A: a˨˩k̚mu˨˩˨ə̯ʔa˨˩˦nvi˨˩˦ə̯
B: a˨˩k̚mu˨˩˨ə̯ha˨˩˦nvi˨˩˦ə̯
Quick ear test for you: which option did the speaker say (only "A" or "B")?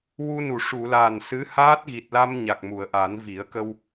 A